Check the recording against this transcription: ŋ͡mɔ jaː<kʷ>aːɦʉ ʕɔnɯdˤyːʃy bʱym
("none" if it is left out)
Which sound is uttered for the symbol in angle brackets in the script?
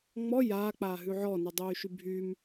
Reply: k͡p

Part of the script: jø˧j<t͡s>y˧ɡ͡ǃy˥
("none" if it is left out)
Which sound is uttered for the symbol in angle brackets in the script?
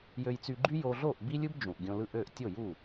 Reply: t͡s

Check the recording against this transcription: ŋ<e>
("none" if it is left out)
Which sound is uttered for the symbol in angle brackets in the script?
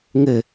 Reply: ɘ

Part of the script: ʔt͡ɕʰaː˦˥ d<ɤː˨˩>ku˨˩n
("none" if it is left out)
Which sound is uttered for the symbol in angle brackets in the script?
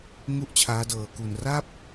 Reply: ɤː˨˩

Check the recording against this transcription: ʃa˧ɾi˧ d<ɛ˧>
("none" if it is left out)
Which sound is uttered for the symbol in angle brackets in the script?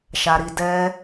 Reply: ɛ˧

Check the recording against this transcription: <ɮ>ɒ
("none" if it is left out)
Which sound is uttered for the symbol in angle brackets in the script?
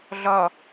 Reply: ɮ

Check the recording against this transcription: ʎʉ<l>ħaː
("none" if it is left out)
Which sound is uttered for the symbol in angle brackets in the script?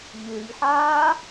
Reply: ʎ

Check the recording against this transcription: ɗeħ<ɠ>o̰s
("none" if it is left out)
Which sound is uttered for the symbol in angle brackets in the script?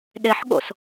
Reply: ɠ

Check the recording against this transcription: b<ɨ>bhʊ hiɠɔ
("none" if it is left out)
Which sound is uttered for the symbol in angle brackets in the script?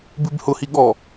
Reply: ɨ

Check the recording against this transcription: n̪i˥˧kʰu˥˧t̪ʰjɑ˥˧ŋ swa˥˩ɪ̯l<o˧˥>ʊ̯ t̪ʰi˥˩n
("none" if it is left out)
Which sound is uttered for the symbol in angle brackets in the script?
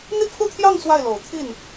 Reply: o˨˩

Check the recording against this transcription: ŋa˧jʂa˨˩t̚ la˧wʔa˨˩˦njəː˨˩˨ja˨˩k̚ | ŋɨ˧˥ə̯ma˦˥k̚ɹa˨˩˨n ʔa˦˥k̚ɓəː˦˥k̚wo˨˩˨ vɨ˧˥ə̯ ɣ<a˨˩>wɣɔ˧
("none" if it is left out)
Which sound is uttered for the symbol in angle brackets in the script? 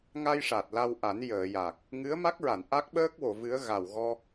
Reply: a˨˩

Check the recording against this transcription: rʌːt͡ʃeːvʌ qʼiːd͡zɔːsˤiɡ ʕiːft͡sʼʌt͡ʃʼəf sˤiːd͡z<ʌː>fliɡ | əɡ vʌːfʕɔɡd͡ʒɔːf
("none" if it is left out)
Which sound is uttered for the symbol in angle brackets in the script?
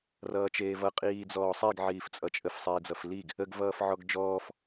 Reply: ʌ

